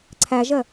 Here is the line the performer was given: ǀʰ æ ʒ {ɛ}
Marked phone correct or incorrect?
incorrect